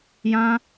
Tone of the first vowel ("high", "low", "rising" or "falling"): high